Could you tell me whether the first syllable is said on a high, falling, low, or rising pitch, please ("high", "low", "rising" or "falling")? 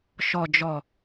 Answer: low